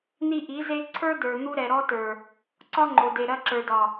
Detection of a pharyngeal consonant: absent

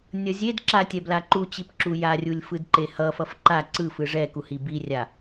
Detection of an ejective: absent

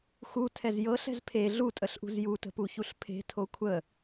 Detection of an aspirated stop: present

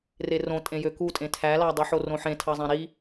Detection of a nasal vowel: present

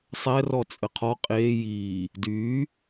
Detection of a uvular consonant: present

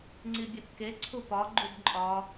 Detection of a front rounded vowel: absent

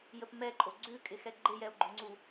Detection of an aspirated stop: absent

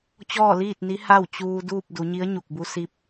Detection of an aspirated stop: absent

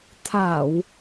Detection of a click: absent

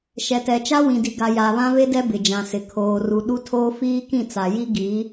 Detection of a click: absent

